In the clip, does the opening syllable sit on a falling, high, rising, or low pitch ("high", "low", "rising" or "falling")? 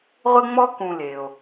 high